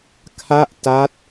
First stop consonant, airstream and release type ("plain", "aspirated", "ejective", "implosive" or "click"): aspirated